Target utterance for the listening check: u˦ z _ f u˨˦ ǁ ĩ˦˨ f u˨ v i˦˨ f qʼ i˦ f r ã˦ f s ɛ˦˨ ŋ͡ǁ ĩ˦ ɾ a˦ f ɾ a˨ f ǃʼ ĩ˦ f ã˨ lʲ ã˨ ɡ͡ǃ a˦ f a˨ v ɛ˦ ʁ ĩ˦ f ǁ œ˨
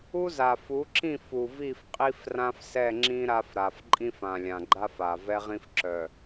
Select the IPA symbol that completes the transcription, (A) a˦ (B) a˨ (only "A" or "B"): B